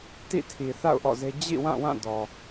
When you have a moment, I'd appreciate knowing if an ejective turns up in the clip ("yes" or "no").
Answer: no